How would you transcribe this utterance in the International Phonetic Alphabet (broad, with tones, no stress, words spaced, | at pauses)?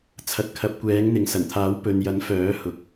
t͡sʰɐ˨t̚kʰɐ˨˥p̚kʷɛː˨˥ŋn̪ɪ˨˧ŋ sɐ˨˩nt̪ʰaː˨˥wpɵ˨njɐ˨˥n fœː˨˥hʊ˨˥k̚